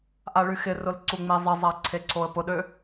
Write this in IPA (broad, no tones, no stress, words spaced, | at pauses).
ʔaɭyxɪrʊl ǀuŋ͡mezˤɪzˤa ǀʰeǀʰoə̯pʊɗø